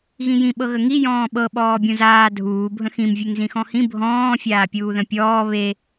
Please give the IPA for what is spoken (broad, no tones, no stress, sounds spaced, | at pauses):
ɣ ĩ j ĩ ɓ ɤ ɣ ə ŋ i j ɔ̃ː ɓ ɤ ɓ ɔː bʲ ũ z aː dʱ uː bʱ ə̃ x ĩ m vʲ e ŋ z ĩ x ɔ̃ h ĩ bʱ ɔ̃ː fʲ aː pʲ uː ð ə̃ pʲ ɔː β e